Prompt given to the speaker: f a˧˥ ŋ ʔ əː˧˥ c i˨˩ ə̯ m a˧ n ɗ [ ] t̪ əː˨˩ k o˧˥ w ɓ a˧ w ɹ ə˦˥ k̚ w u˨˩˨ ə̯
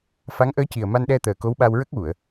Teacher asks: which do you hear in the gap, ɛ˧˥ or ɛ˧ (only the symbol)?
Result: ɛ˧